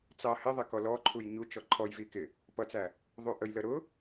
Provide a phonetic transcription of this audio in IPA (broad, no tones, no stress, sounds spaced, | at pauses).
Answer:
t͡s ɑ h ɪ ðˤ ɪ k ɔ l ɔ ǃʰ u j ɲ u t͡ʃ ɔ ǃʰ ɔ j v i k ɪ | p ʌ t͡s æ | ðˤ u ʔ ə j l ə ɾ ʊ